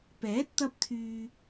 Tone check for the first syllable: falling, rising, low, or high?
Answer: rising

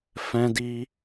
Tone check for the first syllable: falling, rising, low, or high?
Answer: high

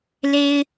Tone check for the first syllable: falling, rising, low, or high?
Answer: high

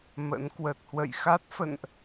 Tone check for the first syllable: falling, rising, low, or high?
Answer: rising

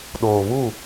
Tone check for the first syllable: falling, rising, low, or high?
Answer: low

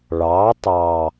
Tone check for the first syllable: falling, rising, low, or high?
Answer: rising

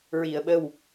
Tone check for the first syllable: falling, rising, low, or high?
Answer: low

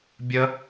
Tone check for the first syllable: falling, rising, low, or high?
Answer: high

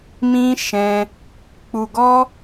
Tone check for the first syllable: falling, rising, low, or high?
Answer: high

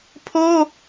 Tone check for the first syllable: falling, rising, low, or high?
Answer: high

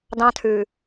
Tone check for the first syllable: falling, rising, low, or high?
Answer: high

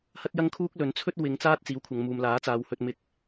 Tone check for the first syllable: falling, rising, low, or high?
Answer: high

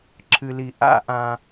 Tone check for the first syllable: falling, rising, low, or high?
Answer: low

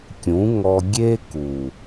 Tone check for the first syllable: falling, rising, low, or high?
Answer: rising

